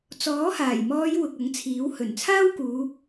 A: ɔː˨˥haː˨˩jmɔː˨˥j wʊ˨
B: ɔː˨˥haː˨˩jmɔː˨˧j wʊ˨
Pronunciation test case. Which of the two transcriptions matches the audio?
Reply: B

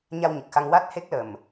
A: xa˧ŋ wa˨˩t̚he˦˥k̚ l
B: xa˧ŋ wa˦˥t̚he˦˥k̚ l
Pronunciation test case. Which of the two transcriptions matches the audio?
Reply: B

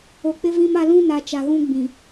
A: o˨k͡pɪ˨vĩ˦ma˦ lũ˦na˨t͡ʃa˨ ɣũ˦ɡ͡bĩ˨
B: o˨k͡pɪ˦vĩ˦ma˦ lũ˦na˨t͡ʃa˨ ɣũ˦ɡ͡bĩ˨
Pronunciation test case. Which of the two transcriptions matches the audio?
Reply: B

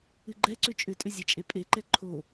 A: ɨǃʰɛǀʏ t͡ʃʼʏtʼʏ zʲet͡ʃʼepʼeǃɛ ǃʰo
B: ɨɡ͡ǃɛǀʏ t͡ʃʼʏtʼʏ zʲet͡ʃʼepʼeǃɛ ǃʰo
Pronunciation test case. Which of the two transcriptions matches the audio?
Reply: B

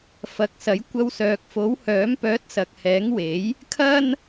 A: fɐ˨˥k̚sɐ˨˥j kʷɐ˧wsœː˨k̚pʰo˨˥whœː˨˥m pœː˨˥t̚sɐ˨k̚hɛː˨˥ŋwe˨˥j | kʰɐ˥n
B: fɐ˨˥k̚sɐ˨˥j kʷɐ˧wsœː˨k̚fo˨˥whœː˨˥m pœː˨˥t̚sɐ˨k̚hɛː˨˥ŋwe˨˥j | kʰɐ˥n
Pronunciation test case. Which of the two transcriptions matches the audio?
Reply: B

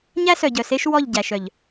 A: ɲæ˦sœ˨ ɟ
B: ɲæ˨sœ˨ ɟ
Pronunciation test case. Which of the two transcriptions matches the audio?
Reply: A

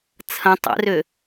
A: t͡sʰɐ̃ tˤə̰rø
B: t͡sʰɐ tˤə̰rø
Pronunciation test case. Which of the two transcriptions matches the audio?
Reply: A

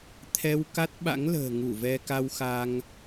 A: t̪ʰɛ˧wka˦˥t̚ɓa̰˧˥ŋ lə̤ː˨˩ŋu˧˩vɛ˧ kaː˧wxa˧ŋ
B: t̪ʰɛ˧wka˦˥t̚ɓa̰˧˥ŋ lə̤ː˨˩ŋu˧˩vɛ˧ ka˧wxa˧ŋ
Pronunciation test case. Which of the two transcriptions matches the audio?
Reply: B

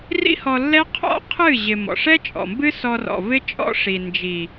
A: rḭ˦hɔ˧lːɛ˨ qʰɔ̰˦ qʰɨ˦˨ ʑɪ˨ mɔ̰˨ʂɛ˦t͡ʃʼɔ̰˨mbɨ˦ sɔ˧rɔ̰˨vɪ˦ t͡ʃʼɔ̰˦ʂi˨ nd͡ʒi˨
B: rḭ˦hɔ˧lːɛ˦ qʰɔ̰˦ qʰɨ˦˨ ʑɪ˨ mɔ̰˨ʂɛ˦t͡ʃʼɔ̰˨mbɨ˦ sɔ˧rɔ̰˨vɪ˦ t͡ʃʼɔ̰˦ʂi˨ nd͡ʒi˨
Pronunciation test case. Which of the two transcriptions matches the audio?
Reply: B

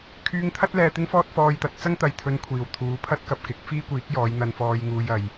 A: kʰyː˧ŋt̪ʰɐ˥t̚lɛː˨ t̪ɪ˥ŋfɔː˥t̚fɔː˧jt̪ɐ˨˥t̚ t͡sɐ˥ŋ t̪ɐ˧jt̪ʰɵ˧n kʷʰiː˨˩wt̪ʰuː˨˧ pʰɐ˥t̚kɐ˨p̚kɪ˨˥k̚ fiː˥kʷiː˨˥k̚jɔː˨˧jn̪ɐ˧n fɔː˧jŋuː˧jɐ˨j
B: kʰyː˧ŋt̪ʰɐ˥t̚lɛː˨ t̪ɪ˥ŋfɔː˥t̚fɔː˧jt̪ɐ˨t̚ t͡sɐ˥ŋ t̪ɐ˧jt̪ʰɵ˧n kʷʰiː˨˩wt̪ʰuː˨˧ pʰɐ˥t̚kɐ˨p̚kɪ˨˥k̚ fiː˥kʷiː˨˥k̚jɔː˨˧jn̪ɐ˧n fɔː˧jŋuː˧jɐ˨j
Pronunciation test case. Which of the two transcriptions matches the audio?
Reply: A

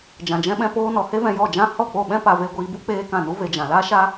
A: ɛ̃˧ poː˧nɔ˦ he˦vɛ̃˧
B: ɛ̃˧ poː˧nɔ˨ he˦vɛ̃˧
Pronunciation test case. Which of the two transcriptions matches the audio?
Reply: B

